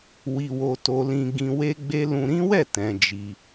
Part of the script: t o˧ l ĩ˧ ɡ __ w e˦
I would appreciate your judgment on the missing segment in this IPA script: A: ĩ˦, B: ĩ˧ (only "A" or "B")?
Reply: B